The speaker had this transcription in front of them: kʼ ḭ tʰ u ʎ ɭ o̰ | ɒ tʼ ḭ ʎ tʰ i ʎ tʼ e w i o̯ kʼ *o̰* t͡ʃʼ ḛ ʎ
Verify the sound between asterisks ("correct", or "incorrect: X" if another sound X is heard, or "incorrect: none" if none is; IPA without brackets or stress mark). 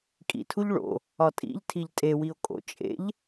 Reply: correct